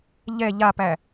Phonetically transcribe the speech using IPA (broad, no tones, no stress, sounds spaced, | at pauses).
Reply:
ʎ ɛ ʎ a p æ